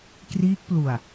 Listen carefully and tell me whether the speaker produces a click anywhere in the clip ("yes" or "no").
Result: no